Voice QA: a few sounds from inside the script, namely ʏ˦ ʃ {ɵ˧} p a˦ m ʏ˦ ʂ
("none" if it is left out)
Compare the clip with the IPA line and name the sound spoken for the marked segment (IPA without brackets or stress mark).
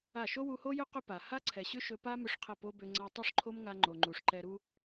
ɵ˧